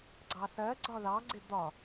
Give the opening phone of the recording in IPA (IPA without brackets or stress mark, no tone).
ɡ͡ǀ